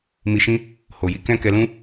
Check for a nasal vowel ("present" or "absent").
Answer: present